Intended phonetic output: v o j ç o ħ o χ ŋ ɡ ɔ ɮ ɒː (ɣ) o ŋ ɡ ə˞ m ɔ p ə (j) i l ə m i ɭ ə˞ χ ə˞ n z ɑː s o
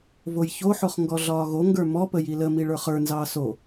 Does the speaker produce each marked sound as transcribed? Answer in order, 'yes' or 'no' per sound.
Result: yes, yes

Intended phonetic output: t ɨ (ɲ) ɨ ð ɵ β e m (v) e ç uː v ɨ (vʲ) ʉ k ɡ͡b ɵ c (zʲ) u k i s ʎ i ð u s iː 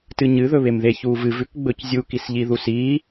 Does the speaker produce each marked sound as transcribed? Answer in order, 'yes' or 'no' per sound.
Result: yes, no, no, yes

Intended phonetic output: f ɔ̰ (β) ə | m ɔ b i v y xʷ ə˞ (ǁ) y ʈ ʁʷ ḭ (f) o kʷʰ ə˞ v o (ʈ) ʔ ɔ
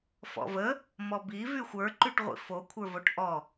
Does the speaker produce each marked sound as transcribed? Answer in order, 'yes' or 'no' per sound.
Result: no, no, yes, yes

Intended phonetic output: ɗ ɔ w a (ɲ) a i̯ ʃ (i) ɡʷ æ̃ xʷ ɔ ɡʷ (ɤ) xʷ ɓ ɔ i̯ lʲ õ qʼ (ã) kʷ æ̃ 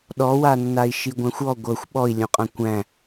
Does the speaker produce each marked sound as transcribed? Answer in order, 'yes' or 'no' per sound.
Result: no, yes, yes, yes

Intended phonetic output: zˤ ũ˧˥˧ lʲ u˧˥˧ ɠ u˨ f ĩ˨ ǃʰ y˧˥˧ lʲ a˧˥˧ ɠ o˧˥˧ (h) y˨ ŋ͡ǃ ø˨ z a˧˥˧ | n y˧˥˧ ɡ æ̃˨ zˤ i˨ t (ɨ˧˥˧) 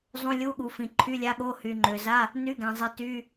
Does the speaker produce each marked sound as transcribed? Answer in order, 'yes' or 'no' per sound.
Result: yes, no

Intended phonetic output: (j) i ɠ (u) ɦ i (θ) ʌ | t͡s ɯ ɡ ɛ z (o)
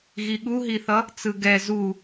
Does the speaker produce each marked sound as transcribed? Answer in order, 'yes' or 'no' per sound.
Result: no, yes, yes, no

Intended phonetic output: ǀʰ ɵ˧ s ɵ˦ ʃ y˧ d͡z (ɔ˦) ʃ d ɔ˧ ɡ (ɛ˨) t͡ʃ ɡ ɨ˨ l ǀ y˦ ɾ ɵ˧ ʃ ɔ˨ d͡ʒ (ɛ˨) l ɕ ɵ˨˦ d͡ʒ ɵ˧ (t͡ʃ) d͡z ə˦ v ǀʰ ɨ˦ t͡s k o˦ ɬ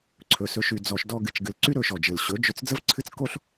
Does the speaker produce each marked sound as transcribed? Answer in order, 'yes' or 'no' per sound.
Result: no, no, no, no

